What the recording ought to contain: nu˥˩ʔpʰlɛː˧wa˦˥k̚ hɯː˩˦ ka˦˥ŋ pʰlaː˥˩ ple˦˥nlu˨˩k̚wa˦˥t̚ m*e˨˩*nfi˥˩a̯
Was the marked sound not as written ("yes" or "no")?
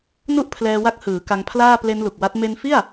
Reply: yes